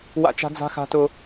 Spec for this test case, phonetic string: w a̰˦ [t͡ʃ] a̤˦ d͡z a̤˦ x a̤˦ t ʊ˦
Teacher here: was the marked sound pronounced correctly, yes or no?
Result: yes